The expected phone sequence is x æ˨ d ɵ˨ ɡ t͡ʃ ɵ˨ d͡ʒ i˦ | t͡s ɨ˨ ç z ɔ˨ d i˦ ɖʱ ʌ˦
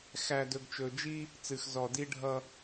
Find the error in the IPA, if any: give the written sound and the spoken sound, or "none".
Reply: ç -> x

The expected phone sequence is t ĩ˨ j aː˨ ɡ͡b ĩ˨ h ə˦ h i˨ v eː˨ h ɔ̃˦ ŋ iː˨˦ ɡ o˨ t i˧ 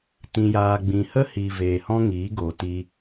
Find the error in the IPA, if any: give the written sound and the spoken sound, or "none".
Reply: none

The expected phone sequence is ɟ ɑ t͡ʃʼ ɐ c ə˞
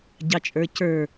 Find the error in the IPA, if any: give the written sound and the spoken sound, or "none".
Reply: ɐ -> ə˞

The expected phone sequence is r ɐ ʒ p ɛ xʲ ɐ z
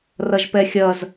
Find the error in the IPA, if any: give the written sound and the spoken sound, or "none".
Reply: none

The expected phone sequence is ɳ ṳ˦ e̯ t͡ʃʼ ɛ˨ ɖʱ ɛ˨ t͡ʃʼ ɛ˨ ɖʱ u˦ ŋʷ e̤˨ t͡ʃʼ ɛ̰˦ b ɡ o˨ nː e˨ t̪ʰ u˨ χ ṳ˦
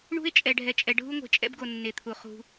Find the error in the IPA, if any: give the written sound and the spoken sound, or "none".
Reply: none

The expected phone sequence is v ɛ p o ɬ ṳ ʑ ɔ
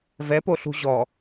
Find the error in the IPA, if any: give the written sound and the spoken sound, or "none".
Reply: none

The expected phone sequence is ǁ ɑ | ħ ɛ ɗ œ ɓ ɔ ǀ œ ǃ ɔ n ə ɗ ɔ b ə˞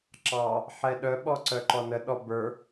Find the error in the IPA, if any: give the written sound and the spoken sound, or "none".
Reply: none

